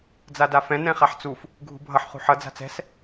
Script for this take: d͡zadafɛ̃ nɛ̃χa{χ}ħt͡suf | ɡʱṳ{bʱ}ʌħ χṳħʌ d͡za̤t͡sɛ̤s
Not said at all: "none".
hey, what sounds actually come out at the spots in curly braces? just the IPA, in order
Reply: none, bʱ

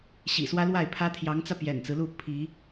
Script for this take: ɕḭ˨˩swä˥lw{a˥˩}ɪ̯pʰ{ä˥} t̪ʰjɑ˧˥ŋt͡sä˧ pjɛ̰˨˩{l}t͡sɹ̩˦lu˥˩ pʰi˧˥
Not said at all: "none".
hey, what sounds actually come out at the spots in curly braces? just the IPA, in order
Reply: a˥˩, ä˥, n

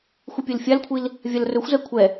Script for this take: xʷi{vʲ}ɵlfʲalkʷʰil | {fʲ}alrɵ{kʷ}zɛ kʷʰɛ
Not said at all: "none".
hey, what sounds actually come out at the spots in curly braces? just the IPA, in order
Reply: pʲ, vʲ, xʷ

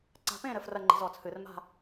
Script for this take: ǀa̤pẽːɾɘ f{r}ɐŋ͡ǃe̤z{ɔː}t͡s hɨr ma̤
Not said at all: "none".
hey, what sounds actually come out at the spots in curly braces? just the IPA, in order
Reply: r, ɔː

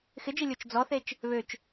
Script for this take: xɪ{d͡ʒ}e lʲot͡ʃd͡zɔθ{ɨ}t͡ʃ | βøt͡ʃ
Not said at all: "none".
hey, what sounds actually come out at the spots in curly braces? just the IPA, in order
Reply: d͡ʒ, e

